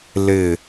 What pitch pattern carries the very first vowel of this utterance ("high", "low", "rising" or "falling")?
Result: falling